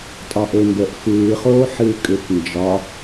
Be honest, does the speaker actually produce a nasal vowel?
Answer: no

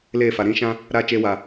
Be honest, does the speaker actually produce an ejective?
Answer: no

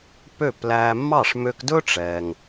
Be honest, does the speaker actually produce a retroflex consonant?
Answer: yes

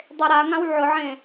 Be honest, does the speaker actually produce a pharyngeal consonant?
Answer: yes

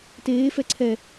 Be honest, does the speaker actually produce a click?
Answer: yes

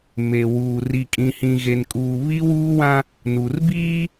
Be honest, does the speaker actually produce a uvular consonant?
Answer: no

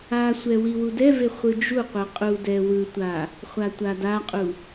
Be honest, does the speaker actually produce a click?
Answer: no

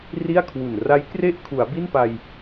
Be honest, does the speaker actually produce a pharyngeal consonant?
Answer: no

